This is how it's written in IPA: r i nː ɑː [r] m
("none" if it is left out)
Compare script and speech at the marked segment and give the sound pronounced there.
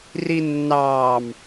none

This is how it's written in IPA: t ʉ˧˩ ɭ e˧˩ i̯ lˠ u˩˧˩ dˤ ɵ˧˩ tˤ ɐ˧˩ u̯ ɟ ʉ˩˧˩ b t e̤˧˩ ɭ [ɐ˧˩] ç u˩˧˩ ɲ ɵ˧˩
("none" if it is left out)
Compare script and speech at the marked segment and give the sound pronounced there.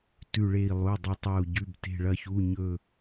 ɐ˧˩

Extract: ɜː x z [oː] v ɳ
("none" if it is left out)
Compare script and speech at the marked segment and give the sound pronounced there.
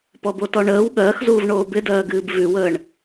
uː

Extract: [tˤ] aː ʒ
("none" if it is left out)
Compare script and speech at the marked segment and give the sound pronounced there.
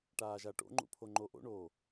ʈ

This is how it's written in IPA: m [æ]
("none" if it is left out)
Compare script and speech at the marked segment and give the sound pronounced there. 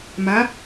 a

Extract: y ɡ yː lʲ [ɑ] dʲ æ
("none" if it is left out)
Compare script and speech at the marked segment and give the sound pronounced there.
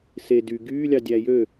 ɑ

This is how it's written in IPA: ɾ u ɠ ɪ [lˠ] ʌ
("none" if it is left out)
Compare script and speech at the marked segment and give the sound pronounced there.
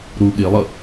lˠ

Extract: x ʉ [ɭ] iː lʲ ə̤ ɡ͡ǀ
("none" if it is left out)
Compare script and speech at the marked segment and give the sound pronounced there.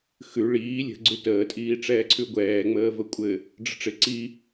ɭ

